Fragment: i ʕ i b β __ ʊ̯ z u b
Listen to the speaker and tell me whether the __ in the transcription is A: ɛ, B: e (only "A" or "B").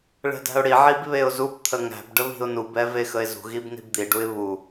B